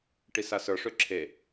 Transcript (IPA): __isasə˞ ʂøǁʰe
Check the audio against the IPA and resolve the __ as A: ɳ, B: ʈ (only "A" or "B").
B